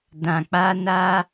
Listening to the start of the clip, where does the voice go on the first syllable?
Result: low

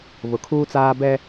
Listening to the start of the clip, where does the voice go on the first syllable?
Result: low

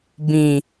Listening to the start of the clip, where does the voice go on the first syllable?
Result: low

